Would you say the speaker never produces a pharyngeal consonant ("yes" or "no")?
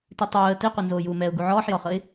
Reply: no